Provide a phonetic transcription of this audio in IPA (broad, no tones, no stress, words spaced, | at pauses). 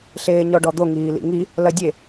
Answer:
ɬeːɲɔɖɔd̪o ŋiːlḭŋi | lɐdʲe